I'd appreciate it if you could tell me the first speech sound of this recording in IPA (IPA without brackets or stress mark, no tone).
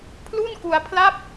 pʰ